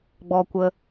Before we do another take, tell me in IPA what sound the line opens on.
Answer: ɡ͡b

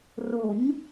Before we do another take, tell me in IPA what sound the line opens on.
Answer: r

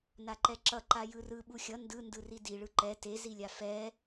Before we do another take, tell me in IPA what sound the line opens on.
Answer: n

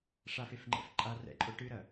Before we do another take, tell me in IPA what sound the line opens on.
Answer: ʂ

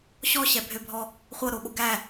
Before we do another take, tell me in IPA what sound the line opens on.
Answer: ɕ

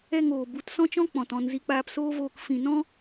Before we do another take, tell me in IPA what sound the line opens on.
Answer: ɛ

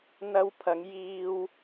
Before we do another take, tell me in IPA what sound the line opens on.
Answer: n̪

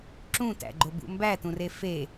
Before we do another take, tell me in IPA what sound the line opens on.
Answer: ǁ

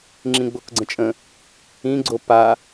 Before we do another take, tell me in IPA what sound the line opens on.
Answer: ŋ͡ǁ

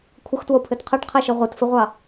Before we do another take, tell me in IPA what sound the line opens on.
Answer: kʷʰ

